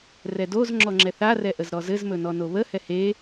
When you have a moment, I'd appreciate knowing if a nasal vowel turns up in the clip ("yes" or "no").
no